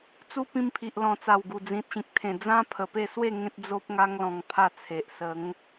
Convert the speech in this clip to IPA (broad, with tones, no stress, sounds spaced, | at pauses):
t͡s u˦ p ĩ˧ m pʰ i˨ ʔ l ɔ̃˨˩ t͡s a˨˩ w ɡ u˨˩ d͡z ĩ˨ t̚ ɕ ĩ˨ k̚ t̪ʰ ẽ˨˩ d͡z ã˦ pʰ ə˨˩ p e˥˧ s w e˥˧ ŋ ẽ˦ t̚ d͡z o˦ p̚ ŋ a˦ ŋ l ɔ̃˧ ŋ pʰ a˥˧ t͡sʰ e˨ ʔ s ə˨˦ ŋ